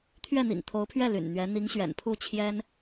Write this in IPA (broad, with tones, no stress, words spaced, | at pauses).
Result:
t̪ʰɥɛ˥˩n̪ḭ˨˩ŋt̪ʰo˧˥ʊ̯pʰɥɛ˥˩ ly̰˨˩nn̪ɥɛ˧˥ n̪i˧˥ŋɕɥɛ̰˨˩n pʰu˥˩t͡ɕʰjɛ˥n